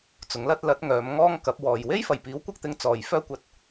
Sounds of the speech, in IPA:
t͡sʊ˨˥ŋlɐ˥t̚ lɐ˨˥t̚ŋœː˨˧m ŋɔː˥ŋkɐ˨˥p̚ wɔː˨j we˥jfɐ˨˩jpiː˨˥w kʷɐ˥k̚t̪ɪ˧ŋ t͡sɔː˨j fœː˥kʷɐ˧t̚

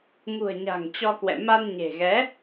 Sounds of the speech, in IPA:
ŋṳ˨˩ə̯ɲa̤˨˩ŋ t͡ɕɔ˧kwɛ̰˧˨ ma˧nɲe̤˨˩ɣɛ˨˦

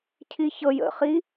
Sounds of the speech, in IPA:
cʰiçɤj ə̰χi

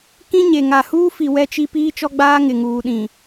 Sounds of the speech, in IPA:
kĩ˦ɲe˨ ŋa˨huː˦fi˨ wɛ˦t͡ʃi˦ piː˦t͡ʃɔ˦ɡ͡baː˦ŋɪ˨ ŋuː˨ɗĩ˨

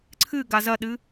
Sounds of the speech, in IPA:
ǀʰɨ ɡazɐɗɨ

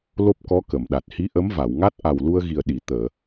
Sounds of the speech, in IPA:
lo˦˥p̚kɔ˧˥ kə˨˩˨mɗa˨˩t̚ hi˧˥ʔə˧˥mva˨˩˨wŋa˦˥t̚ ʔa˨˩wlu˧ə̯ɣi˨˩ə̯ ɗi˨˩˨ t̪əː˨˩˨

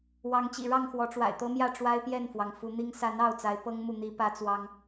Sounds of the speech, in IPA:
wɑ˨˦ŋt͡ɕḭ˨˩ɻɑ˥˨ŋ xwɔ˨˦ʈ͡ʂwa̰˨˩ɪ̯t̪ɤ˦mjä˥˨ ʈ͡ʂwa˦ɪ̯pjɛ˥˨nfwɑ˩ŋ fu˨˦n̪i˦ŋ sa˨˦n ɑ˥˨ʊ̯t͡sa˨˦ɪ̯ pɤ˦ŋmu˨n̪i˨˦ pä˦t͡swɑ˦ŋ

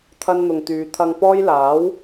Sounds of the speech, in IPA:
t̪ʰɐ˥nn̪ʊ˧ŋt̪yː˧ t̪ʰɐ˧ŋ pɔː˥jlaː˨˥w

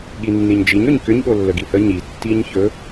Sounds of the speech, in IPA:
ɠinːiɲd͡ʒiɲ ɵɲkʏɲ ɠolːəɡihə ɲi tːiɲçɵ

